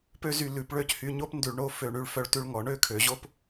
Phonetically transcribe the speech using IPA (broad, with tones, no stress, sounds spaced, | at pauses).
p ø˥ z y˧ l ʉ˩˧ p ɭ ø˥˧ c h y˧ ɲ o˥ p n d ʉ˧ ɭ ɳ o˥˧ f ø˧˩ ɳ y˧ ɭ f œ˧ ɭ t ʉ˧ ɭ ŋ ɔ˩˧ ɳ ø˥˧ kʰ ø˩˧ ʑ o˥ p